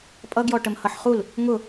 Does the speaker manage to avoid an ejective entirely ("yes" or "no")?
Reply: no